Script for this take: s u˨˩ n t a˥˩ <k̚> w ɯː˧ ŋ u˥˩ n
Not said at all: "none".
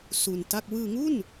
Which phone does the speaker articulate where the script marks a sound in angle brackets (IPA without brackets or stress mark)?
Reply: k̚